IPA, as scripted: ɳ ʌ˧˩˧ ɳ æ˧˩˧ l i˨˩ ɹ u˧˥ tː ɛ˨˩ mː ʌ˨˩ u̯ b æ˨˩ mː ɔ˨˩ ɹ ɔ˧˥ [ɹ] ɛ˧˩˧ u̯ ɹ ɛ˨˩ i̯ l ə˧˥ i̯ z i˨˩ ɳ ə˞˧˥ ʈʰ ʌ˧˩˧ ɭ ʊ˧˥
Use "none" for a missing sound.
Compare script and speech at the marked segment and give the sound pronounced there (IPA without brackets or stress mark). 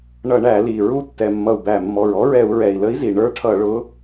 ɹ